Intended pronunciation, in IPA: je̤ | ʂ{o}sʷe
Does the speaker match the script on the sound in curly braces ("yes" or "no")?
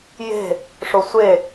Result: yes